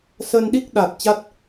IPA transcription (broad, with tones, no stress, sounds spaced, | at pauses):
s ə˧ n ɗ i˦˥ k̚ ɗ a˨˩ t̚ t͡ɕ a˦˥ t̚